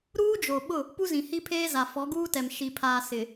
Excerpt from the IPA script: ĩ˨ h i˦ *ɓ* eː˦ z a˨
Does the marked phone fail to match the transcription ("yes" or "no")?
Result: yes